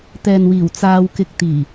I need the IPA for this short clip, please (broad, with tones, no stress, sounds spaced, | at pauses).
t̪ ɛː˨ n w iː˨˩ w t͡s aː˧ w k ɪ˧ k̚ t̪ iː˨˩